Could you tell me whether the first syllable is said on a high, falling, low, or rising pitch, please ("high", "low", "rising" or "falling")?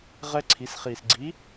high